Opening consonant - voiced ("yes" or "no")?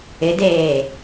yes